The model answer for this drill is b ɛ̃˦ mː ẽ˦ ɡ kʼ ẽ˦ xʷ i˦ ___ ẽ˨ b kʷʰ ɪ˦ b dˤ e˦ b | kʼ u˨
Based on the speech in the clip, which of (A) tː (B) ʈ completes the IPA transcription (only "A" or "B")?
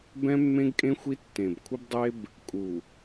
A